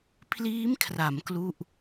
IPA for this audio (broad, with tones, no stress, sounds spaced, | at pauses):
pʰ l iː˦˥ m kʰ r a˩˦ m k l u˥˩ ʔ